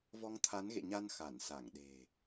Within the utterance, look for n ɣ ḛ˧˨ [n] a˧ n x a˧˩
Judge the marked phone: incorrect: ɲ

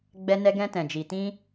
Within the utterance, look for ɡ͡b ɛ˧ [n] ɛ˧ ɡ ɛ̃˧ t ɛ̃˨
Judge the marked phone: correct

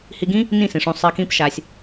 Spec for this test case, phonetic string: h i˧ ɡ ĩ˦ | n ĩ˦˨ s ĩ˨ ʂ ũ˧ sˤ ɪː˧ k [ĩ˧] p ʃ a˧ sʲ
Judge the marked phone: incorrect: ĩ˦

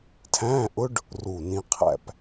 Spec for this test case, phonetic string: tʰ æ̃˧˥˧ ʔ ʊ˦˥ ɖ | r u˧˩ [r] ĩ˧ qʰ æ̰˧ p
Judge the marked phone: incorrect: n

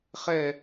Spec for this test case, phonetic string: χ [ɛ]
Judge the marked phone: correct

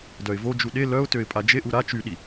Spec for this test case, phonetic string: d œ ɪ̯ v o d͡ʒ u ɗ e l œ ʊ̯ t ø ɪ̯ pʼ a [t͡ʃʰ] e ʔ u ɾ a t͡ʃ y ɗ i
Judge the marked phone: incorrect: d͡ʒ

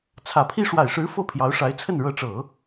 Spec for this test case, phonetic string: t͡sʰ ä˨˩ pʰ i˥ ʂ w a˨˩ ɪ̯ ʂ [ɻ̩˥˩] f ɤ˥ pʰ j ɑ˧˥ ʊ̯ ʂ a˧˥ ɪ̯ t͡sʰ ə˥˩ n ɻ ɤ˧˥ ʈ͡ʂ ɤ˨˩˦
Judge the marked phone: incorrect: ɻ̩˧˥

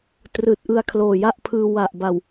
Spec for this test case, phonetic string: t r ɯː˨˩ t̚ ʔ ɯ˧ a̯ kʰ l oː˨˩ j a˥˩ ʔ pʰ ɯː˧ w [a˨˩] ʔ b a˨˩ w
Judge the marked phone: correct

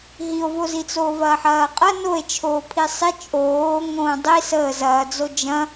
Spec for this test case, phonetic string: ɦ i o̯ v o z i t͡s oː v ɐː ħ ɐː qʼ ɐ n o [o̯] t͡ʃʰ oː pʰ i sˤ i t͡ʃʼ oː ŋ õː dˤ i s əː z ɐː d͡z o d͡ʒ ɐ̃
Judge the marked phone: incorrect: e̯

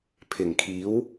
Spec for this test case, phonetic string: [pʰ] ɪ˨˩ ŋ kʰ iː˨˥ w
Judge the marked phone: correct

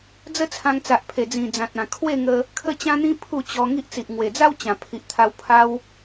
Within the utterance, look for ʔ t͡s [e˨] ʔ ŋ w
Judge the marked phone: incorrect: i˨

